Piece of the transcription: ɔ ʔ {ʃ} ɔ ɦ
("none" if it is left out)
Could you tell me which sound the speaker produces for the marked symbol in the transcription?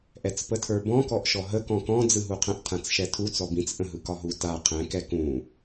ʃ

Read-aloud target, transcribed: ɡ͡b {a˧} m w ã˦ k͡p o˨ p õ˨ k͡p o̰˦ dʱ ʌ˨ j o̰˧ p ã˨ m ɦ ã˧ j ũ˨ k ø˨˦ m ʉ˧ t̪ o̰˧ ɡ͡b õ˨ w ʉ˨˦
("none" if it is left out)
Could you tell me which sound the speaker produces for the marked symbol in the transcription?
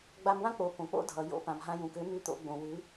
a˧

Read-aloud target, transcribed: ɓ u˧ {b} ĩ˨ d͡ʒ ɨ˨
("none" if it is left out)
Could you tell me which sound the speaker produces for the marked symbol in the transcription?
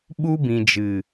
b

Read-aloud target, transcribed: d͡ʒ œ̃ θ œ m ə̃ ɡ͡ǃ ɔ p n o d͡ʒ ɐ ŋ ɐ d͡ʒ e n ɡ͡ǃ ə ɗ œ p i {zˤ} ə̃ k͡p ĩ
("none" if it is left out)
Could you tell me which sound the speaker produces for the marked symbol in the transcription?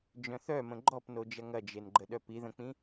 ð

